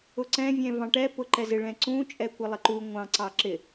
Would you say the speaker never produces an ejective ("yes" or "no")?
no